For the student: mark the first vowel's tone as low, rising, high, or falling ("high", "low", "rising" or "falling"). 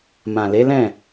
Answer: low